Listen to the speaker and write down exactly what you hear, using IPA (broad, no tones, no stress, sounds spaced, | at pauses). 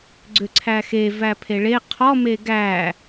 ɡ͡ǀ ʏ ǀʰ æ x e v æ pʰ e ɭ e qʰ ɔ m e ɡ æ